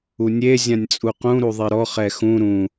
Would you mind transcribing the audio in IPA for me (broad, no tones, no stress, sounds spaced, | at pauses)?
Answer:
u nʲ e zʲ ã nʲ t͡sʼ u q ũ ɾ u ðˤ i ɾ ɔ χ ɛ x ũ ɾ ũ